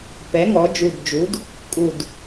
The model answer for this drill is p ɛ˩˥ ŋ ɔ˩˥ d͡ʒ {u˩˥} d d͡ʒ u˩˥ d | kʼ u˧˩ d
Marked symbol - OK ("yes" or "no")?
no